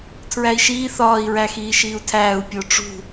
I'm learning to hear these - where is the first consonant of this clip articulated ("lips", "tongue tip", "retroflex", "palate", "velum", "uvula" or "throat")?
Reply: tongue tip